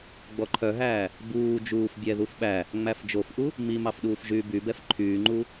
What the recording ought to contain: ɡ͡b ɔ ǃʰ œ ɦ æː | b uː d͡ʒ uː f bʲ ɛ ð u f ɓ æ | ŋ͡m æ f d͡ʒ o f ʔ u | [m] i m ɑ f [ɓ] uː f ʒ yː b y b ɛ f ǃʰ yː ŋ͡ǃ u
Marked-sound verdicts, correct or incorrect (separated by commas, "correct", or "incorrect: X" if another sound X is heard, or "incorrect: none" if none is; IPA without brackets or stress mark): correct, incorrect: ɗ